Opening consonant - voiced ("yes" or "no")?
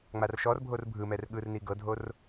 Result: yes